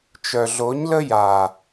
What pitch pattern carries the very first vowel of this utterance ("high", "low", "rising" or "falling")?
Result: low